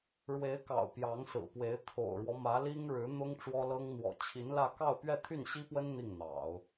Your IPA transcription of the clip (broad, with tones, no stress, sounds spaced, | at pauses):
ɻ w e˧˥ ɪ̯ k ɑ̰˨˩ ʊ̯ p j ɑ˧˥ ŋ s ɹ̩˨˩ p w e˧˥ ɪ̯ t̪ʰ o̰˨˩ ʊ̯ ɻ w ɔ˦ m ä˧˥ l i˥ ŋ ɻ ɻ̩˧˥ n̪ ʊ˥ ŋ ʈ͡ʂ w ɔ˥ l ɤ˥ ŋ n̪ w ɔ̰˨˩ t͡ɕʰ i˧˥ n l ä˥˧ k ɑ˥˧ ʊ̯ p ɥ ɛ˥˧ t̪ʰ y˥˩ n ɕ i˥ p w ə˥ n n̪ i˥˩ ŋ n̪ ɑ̰˨˩˦ ʊ̯